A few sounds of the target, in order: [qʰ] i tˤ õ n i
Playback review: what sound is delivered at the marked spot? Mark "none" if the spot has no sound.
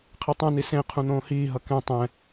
qʰ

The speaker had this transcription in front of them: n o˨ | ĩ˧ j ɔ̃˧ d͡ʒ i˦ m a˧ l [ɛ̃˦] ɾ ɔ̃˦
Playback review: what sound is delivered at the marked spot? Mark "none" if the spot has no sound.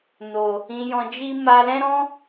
ɛ̃˦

